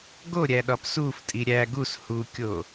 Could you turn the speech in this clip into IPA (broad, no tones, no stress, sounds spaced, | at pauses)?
ɡ o ɾʲ æ ɗ ɒ p s u f tʼ i ɾʲ æ ɡ u s h u kʲ o